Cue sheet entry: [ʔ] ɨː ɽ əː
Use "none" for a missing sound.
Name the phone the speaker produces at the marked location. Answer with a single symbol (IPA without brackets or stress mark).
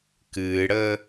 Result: k